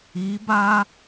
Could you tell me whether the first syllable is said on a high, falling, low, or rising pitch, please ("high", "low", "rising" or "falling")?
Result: rising